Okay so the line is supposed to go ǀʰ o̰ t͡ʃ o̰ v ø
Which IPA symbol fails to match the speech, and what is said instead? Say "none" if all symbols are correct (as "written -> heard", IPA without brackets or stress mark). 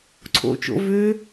none